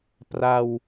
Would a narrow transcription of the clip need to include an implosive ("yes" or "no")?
no